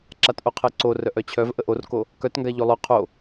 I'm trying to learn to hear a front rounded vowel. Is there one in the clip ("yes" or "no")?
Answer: yes